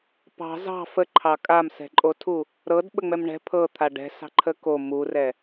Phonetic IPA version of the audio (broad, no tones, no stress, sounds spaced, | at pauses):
p ɑ̤ z ɑ̤ f ə ǃʰ ɑ kʼ a m s ɛ̤ ǃʼ o tʰ u | ɾ ɤ d ɓ ə ŋ͡m ɛ m ɳ ɛ̤ pʰ ɤ t̪ʰ a ɖ ɛ̤ s ɑ̤ ǃʰ ə k o m u r ɛ